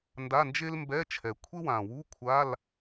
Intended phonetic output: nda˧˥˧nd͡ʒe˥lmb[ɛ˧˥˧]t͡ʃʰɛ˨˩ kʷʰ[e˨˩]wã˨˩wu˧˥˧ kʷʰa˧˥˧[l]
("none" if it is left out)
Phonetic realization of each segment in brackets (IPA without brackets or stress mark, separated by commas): ɛ˧˥˧, e˥, l